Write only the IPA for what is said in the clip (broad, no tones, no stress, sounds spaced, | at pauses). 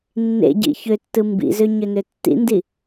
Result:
nː ḛ ɟ ḭ ç ø tː ɯ m b ḭ z ø ɲ ø n ø tː ḭ n d i